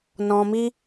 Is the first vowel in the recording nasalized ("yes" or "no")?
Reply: yes